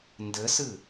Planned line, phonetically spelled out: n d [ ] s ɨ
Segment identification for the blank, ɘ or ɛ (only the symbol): ɘ